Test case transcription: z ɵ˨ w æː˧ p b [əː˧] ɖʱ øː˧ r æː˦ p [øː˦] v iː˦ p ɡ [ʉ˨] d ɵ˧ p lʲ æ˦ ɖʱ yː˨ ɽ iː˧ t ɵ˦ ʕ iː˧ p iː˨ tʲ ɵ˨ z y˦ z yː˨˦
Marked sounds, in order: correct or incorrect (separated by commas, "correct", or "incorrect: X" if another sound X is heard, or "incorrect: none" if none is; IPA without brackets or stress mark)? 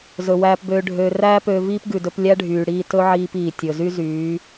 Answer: incorrect: øː˧, incorrect: øː˧, correct